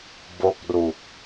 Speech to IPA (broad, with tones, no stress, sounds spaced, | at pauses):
b o˦˥ k̚ r u˨˩ k̚